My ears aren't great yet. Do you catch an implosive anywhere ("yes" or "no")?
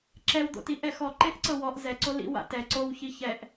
no